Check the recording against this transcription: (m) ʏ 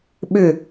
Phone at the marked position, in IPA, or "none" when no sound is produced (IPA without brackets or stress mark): ɓ